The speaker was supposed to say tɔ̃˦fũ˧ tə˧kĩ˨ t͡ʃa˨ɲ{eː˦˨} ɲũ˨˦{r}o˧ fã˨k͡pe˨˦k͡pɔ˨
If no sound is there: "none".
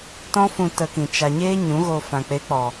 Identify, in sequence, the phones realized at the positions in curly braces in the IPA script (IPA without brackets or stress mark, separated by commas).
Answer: eː˦, ɣ